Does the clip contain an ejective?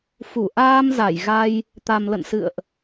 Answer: no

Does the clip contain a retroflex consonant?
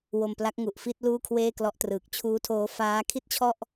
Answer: no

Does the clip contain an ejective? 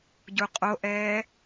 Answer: yes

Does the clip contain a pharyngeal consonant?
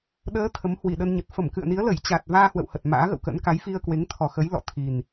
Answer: no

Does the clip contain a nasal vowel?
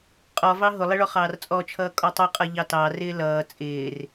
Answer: no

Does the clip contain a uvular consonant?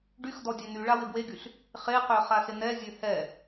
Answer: yes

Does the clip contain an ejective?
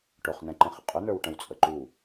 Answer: yes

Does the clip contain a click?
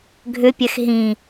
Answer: no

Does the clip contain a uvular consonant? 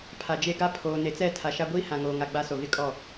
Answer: no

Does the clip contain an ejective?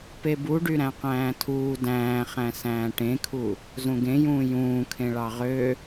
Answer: no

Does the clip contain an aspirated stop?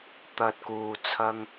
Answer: yes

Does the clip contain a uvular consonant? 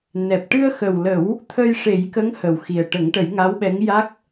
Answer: no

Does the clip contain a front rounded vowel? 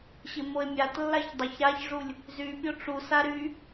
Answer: yes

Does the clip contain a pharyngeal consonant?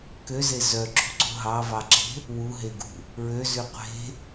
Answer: no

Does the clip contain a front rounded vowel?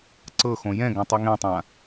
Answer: no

